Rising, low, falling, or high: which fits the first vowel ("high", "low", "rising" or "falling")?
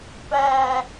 high